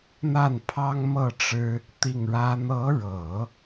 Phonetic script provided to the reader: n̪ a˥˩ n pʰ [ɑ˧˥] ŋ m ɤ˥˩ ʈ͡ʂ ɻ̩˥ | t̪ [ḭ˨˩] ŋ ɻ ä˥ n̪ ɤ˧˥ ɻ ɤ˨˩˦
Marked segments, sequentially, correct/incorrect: incorrect: ɑ˥, incorrect: i˥˩

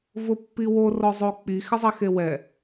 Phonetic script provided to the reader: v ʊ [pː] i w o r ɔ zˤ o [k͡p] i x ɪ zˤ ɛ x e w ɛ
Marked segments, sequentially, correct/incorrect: correct, correct

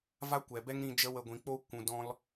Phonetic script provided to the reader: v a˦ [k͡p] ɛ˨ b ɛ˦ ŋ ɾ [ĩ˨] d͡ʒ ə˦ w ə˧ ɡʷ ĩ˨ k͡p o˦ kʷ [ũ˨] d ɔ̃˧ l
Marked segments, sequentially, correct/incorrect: incorrect: kʷ, incorrect: ĩ˧, correct

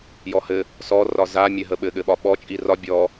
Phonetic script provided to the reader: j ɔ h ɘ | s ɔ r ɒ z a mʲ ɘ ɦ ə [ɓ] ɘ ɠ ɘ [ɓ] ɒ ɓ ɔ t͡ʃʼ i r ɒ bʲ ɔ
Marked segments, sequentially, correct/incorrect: correct, correct

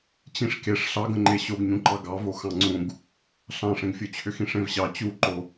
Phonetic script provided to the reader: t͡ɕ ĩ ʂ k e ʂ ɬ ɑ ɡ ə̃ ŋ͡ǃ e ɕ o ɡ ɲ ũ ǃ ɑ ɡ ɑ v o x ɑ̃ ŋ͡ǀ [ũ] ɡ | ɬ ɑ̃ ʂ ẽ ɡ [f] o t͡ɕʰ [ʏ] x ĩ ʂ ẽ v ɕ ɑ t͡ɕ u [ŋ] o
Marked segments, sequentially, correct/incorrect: correct, incorrect: fʲ, correct, incorrect: ǃ

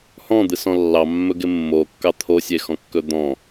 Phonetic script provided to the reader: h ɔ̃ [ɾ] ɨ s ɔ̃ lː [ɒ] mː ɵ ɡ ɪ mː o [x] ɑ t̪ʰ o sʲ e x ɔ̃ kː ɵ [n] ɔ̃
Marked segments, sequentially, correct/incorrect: incorrect: d̪, incorrect: ɑ, incorrect: kː, incorrect: d̪

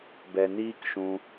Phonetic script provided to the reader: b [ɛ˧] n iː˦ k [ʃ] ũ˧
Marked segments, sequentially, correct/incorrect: correct, correct

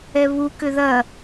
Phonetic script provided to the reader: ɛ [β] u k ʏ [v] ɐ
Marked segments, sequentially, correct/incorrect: correct, incorrect: ð

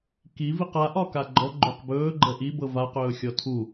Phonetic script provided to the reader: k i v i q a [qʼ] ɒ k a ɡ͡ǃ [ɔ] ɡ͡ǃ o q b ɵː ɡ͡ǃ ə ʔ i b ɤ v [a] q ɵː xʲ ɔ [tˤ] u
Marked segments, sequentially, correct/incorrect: incorrect: ʔ, correct, correct, incorrect: tʰ

